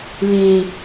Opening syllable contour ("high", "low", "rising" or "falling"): low